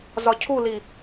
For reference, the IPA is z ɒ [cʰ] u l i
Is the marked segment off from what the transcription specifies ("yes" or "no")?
no